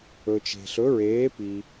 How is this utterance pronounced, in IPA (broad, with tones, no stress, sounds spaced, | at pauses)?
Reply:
ɵ˨ t͡ʃ e̤˨ ɬ ɵ˨˥ ɹ eː˨˥ p i˨